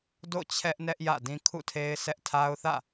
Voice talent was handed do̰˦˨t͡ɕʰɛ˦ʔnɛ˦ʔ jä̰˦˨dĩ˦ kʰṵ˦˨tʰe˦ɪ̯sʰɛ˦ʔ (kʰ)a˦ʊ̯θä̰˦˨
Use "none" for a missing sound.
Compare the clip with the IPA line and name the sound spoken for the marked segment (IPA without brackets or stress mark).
tʰ